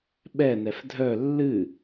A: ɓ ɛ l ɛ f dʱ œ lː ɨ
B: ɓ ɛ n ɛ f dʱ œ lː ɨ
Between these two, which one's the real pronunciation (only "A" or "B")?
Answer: B